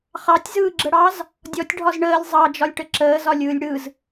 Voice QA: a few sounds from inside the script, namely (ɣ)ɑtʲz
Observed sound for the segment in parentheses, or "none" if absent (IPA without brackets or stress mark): χ